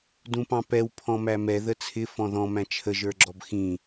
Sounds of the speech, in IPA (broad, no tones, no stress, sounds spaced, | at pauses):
d ũ p ɑ̃ p ɛ w pʰ ɔ̃ m æ m ɛ ð ə t͡sʰ ɪ f ɔ̃ ð ɔ̃ m æ̃ t͡ʃʰ ə ʒ ə˞ ɡ͡ǁ ɔ b x ĩ